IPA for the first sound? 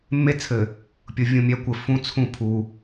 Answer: mː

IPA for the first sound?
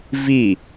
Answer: v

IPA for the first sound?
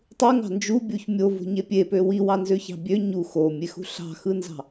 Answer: tˤ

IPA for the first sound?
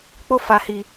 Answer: k͡p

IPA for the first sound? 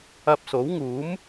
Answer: ɐ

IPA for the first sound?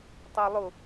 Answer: tˤ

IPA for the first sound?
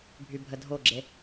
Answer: bʱ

